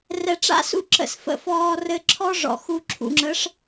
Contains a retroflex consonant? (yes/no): yes